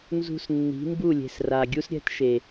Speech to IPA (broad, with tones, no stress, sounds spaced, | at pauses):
n z ṳ˧ s nː i̤˨˦ m b u˦˨ lʲ e̤˨ s r a˨ ɡʲ u˦ s ɾʲ ɛ̤˦ t ʃ e˨